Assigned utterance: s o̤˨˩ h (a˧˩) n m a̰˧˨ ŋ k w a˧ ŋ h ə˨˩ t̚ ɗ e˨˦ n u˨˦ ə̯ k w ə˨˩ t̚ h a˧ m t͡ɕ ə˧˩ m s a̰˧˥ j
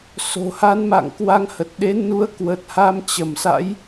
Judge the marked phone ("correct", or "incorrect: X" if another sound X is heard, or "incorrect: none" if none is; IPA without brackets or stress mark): incorrect: a˨˦